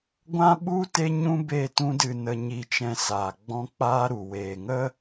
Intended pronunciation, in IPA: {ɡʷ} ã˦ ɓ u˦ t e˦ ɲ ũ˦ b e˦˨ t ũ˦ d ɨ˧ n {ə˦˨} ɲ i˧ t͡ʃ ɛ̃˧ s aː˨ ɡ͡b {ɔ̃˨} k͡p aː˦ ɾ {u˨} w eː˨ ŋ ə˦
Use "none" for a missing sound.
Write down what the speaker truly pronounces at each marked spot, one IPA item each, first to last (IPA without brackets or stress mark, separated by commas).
ɡʷ, ə˧, ɔ̃˦, u˨